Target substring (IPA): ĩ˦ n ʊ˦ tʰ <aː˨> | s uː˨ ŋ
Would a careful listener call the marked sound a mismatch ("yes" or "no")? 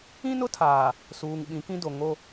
no